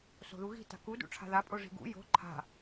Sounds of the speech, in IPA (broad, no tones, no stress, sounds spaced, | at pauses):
s o̤ ð u ɣ i̤ t a̤ k u d ṵ ʈ͡ʂʰ a̤ ð a pʼ o ʐ i̤ ɡ ṵ j o̤ ǃʰ a̤